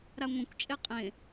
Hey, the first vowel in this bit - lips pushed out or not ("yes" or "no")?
no